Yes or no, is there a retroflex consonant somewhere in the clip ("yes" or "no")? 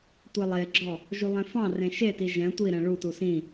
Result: yes